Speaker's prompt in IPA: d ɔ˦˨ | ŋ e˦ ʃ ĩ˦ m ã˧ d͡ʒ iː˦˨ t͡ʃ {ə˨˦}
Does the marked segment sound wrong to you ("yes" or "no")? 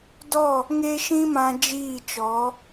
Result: yes